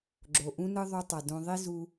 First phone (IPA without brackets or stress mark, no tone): ɡ͡ǁ